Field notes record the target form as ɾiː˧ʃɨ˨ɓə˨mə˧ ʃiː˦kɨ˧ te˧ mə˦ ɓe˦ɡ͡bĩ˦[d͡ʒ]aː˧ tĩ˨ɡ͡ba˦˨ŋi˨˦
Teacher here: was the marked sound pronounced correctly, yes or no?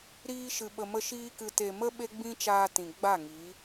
no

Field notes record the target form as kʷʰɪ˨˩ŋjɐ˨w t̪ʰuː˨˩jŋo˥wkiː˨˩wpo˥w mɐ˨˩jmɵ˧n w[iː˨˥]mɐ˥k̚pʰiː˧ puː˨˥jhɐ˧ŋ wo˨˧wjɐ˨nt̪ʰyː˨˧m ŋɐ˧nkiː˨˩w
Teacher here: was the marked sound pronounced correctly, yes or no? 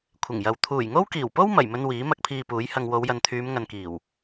yes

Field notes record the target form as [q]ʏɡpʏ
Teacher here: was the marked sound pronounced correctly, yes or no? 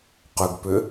yes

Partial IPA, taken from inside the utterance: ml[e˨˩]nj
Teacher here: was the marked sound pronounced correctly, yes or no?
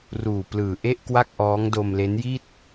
no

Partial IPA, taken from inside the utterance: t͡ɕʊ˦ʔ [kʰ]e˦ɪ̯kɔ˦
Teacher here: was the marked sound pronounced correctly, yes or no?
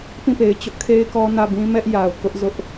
yes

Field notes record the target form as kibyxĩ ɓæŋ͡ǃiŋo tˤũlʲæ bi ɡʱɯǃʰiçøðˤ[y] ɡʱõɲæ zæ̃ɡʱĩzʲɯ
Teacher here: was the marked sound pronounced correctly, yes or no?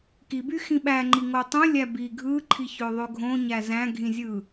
no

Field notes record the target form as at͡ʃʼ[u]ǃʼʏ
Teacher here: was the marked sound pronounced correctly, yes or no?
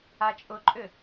no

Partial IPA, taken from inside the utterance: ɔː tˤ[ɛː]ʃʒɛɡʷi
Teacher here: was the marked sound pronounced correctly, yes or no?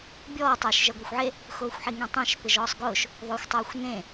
yes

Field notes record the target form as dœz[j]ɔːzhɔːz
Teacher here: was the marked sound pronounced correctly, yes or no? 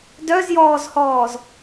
yes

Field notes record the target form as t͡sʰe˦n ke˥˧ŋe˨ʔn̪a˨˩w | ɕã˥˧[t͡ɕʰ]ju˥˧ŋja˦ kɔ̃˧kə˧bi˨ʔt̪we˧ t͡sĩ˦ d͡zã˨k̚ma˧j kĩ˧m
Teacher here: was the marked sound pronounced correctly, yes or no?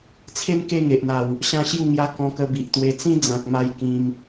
no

